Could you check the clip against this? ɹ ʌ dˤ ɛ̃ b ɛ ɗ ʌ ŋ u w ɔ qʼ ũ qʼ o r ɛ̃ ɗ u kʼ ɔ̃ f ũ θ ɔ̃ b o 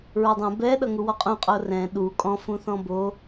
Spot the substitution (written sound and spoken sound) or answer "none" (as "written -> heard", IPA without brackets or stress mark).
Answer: none